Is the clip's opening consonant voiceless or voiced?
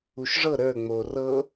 voiceless